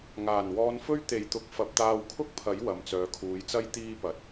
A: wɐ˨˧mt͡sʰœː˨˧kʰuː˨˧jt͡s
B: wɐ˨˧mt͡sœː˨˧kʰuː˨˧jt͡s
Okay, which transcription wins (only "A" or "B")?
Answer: B